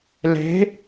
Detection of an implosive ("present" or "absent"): absent